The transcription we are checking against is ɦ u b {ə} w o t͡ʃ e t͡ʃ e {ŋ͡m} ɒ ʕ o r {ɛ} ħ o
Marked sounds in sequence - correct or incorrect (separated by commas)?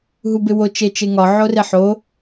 incorrect, incorrect, incorrect